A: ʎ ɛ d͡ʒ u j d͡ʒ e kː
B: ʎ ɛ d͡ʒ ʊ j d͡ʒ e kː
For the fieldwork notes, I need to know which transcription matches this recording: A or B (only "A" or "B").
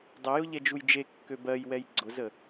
A